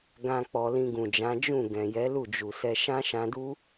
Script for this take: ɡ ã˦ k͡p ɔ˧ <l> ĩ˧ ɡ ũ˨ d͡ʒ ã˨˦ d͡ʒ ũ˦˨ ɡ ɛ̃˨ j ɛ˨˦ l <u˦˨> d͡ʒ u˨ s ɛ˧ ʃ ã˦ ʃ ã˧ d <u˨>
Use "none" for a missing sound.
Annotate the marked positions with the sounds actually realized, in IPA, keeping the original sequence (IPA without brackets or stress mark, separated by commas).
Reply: l, u˦˨, u˦